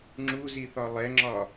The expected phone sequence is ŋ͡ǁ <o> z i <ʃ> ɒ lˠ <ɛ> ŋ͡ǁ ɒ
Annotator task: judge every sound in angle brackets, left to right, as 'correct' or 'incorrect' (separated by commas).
incorrect, incorrect, correct